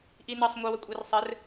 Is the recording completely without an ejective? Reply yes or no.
no